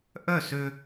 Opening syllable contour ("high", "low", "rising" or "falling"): falling